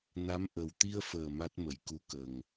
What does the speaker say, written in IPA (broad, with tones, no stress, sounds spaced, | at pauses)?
n a˧˥ m ʔ ə˨˩ w t̪ i˧ ə̯ f əː˨˩ m a˦˥ t̚ m ə˨˩˨ j k u˧˥ k ə˨˩ ŋ